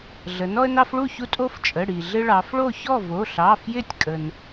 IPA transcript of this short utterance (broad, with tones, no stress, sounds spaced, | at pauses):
ɮ ə˩˧ n ɔ˦ ə̯ n ɑ˦ f ɭ u˥˨ ç u˦ tʼ o˦ f t͡ʃʼ ə˩˧˩ ɽ i˩ ɮ ɪ˦ ɭ ɑ˩˧ f ɭ o˥˨ ç ɔ˥˨ v o˩˧˩ ɬ ɑ˩˧˩ f j ɪ˥˨ tʲ kʼ ə˩ n